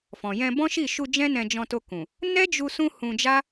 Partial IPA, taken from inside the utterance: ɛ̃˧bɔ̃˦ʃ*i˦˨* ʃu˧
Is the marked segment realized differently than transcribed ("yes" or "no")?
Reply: no